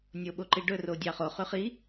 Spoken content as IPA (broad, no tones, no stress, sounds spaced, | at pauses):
nʲ o ɓ o ǃ i ɖ ɵ r o dʲ ɑ χ o χ ʉ χ i